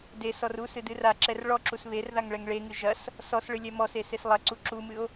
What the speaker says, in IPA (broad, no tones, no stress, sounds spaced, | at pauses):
d e s ɔ r u s ɨ d ɨ r a ǁ ɛ r ɭ ɔ ǁ u s β e r ð a ŋ ɭ ɛ ŋ ɭ e ŋ ɨ ʒ ɐ s | s ɔ s ɭ ɨ lʲ ɛ m ɔ s e s e s lˠ ɐ ǀ u ǁ u m ɨ o̯